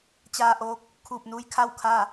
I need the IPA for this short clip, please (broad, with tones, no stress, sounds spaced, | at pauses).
t͡ɕ aː˧ ʔ oː˧˥ k̚ | kʰ uː˧˩ p̚ n uː˧˥ j kʰ a˥˨ w kʰ a˥˨